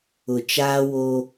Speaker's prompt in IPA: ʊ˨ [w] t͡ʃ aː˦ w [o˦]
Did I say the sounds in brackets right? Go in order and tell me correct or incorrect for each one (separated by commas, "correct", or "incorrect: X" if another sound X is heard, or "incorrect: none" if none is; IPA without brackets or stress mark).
incorrect: none, correct